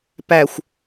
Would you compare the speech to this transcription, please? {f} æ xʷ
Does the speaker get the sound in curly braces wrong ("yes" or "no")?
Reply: yes